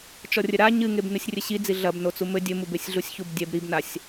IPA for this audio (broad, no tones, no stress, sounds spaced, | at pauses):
t͡ʃ ɔ rʲ ɘ ɾ a ɲ ɨ ŋ e b n ɨ sʲ rʲ ɘ ɕ i d͡z i ɮ ɐ b n o t͡s u m ɘ dʲ ɘ m u b e sʲ ɮ u sʲ ç u b dʲ ɛ b ɾ i b n a sʲ